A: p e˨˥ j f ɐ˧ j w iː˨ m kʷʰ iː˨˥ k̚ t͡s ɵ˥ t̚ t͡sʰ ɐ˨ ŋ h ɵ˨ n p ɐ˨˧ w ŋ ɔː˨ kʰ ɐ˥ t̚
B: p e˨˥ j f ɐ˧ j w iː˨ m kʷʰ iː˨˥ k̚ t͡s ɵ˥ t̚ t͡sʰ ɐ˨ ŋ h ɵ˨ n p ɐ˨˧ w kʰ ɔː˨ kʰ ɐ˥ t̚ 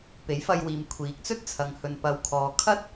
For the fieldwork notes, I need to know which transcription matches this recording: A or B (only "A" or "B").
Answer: B